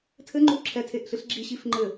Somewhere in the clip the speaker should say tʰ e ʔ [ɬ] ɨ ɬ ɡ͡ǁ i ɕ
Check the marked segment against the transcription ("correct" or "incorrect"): correct